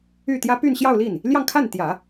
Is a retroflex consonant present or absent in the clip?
absent